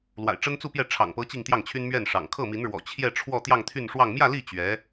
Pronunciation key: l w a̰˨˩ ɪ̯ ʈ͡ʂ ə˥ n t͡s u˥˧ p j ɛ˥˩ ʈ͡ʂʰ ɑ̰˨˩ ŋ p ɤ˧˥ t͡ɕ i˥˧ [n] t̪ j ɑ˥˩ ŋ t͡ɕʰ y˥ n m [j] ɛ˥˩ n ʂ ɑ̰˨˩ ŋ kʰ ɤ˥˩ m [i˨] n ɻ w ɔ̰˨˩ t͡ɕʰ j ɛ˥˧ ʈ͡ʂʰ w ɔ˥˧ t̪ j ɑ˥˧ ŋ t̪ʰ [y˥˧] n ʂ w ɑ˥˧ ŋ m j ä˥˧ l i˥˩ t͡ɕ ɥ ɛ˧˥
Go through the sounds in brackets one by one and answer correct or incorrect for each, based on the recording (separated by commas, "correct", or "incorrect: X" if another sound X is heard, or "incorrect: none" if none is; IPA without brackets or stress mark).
incorrect: ŋ, incorrect: ɥ, incorrect: i˧˥, correct